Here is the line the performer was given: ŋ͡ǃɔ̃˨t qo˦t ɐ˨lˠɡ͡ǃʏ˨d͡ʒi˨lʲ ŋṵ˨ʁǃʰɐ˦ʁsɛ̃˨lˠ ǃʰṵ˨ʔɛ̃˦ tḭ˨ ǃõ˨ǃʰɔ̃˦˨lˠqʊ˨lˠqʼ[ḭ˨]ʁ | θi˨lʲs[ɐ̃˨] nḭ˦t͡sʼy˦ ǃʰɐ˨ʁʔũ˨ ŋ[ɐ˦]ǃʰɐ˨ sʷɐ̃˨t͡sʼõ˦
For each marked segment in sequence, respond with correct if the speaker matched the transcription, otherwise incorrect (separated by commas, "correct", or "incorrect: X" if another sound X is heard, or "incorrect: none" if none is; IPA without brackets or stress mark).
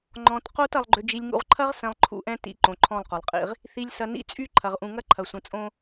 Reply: incorrect: ḭ˦, incorrect: ɐ˨, correct